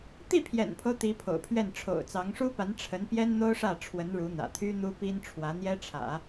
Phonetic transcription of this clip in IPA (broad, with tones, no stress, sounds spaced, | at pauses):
t̪ i˥˩ pʰ j ɛ̰˨˩ n pʰ o˦ ʊ̯ t̪ i˧˥ pʰ o̰˨˩ ʊ̯ pʰ ɥ ɛ˥˩ n ʈ͡ʂʰ o̰˨˩ ʊ̯ t͡s ɑ˧˥ ŋ ʂ u˥ p a˧˥ n ʈ͡ʂʰ ə˧˥ n p j ɛ˥ n n̪ o˥ ʊ̯ ʂ ä˥˩ ʈ͡ʂʰ w ə˧˥ n ɻ u˧˥ n̪ ä̰˨˩ t̪ʰ y˥ n̪ u˥ p i˥ n ʈ͡ʂʰ w ä˧˥ n̪ j ɛ˥ ʈ͡ʂʰ ä̰˨˩˦